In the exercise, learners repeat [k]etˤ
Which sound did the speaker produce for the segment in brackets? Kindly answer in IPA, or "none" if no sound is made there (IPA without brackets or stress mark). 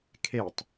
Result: kʰ